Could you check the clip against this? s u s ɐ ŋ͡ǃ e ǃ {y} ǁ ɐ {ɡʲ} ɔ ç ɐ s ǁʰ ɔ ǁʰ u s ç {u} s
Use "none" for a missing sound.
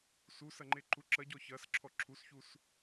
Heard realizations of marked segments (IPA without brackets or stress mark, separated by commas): u, ɟ, u